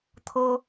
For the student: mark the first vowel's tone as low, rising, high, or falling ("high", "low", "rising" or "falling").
high